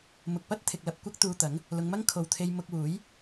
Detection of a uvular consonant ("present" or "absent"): absent